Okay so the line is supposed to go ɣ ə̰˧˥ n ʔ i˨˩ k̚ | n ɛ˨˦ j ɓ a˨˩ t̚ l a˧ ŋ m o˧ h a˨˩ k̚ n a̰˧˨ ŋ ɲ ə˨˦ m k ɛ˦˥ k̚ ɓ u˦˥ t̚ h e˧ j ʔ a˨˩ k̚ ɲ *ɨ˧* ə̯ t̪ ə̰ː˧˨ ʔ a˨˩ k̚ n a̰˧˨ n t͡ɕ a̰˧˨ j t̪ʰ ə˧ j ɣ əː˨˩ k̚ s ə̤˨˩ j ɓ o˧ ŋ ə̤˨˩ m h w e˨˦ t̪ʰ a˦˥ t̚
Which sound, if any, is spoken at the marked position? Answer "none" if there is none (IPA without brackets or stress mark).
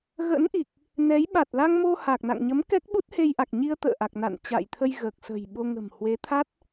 i˧